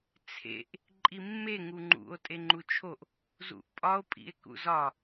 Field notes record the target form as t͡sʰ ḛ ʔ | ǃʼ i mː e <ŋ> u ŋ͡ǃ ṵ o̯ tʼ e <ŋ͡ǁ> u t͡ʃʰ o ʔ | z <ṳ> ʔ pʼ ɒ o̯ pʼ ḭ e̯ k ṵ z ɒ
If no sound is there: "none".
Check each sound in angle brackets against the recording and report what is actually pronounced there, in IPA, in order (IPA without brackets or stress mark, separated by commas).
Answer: ŋ, ŋ͡ǃ, ṵ